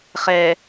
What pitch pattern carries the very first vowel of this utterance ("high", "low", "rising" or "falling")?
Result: low